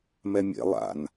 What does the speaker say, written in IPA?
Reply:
mɛmʲḛ lˠa̰n

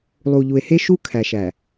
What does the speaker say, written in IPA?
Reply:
lˠu˨ʎu˨e̯ he˦ʃu˦ kʰæ˨ʃæ˨

